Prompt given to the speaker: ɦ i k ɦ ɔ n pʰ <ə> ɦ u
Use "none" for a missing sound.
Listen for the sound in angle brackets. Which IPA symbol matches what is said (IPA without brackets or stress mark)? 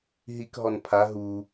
a